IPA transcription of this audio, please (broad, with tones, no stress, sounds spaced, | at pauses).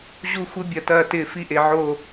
ʑ u˥˧ xʷ ɪ˥ bʲ ɐ˥˧ t ɐː˥˧ t ɪː˥˧ f i˥ ʔ e˧ ʕ o˥˧